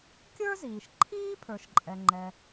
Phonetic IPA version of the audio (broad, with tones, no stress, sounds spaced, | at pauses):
kʲ ə˞˥ z iː˩ ʃ ǃʰ iː˥ pʰ ə˞˩ ʃ ǃʼ ɛ˩ ŋ͡ǃ ɛ˩